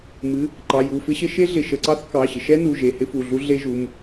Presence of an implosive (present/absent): absent